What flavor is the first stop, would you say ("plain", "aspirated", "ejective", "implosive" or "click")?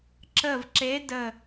click